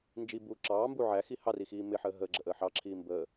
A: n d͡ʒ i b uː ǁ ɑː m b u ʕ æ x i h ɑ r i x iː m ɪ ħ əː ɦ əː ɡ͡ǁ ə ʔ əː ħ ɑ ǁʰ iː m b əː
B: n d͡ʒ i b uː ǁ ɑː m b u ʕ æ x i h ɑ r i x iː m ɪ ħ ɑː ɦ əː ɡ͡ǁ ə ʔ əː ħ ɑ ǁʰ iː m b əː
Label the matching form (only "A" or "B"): A